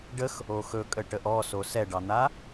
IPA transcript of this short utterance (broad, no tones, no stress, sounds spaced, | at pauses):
ɖ ə x | o x ɵ kʼ ə ʈ ə ʔ ɔ s o s ɛ ɖ ɑ n̪ a